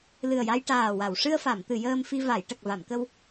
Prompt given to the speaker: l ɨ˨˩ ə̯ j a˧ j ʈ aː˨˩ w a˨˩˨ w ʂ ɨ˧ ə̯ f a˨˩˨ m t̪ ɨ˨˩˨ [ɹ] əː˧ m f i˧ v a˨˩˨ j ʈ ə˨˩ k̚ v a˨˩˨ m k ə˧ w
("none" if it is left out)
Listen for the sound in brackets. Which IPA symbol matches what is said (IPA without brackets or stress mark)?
j